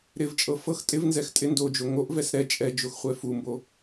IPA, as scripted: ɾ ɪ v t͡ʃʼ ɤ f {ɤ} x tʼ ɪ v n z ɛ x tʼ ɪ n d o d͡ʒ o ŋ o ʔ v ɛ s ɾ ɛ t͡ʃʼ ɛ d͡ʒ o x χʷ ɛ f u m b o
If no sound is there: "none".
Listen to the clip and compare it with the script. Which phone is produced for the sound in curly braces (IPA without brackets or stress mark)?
ɤ